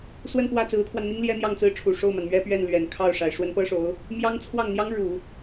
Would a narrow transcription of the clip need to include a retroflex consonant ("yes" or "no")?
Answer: yes